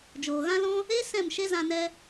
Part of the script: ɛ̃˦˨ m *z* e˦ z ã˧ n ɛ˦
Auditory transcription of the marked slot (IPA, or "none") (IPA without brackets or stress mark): ʃ